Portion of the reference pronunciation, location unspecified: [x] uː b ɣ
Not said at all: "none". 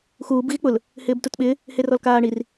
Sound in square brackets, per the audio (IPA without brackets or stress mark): x